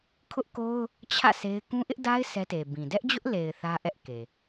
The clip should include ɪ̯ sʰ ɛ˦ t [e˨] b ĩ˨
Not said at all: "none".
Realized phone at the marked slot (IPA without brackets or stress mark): e˨